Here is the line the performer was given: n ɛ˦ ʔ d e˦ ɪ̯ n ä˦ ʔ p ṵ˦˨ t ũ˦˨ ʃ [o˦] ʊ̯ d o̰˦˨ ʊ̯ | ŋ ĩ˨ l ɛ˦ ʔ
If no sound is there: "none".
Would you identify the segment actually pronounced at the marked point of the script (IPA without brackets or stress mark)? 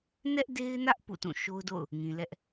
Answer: o˦